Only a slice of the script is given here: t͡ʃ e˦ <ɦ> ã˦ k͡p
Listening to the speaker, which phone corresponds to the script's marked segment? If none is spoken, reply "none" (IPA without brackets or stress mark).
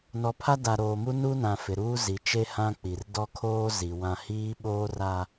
h